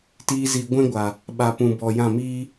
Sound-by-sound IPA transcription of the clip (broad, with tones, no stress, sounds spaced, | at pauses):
t iː˧ z i˨ ɡʷ ɛ̃˦ ɡʷ a˨ | ɓ a˨ p ũ˨ b ɔ˨ j ã˦˨ m iː˦